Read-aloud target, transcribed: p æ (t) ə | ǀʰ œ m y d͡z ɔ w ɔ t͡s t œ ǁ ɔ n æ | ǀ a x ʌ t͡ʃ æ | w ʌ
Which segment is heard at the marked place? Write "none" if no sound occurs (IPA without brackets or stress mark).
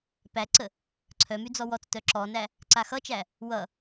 ǀ